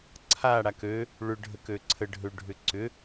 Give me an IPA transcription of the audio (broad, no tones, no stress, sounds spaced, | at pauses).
ǀʰ a ɽ a k ø | ɭ ʏ ɖʱ ə k ø ǀʰ ə ɖʱ ø ɖʱ ʏ ǀ ʏ